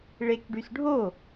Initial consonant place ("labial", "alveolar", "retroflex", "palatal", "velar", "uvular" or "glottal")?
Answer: retroflex